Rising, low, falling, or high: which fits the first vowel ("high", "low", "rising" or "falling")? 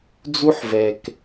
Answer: high